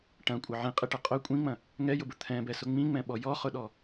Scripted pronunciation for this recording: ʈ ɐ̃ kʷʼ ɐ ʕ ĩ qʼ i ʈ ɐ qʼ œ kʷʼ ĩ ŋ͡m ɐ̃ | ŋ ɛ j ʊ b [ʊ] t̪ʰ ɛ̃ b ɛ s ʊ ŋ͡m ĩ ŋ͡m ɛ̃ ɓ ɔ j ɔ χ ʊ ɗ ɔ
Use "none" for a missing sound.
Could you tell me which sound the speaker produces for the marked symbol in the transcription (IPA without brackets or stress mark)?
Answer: ʊ